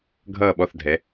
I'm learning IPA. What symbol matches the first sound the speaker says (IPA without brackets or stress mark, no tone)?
ɡʱ